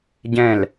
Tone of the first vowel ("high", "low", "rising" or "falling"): falling